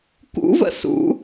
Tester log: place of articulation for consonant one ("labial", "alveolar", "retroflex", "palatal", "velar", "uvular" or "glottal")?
velar